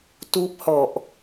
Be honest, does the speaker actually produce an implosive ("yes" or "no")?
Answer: no